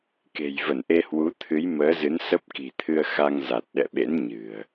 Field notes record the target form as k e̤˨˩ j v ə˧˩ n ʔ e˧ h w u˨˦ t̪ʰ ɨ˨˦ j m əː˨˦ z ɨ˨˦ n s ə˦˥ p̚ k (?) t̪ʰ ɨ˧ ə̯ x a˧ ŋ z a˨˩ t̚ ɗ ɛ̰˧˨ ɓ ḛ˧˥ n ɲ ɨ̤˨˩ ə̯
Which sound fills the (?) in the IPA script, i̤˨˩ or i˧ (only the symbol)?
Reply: i̤˨˩